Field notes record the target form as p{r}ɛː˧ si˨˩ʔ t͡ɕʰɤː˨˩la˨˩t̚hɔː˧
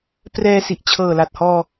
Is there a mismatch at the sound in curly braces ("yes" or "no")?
no